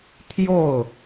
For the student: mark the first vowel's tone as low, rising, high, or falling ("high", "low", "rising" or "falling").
falling